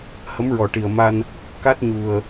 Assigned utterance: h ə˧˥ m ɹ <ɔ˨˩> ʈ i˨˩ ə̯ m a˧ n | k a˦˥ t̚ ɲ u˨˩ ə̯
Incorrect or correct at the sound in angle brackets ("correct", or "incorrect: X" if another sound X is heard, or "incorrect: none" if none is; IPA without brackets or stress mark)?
correct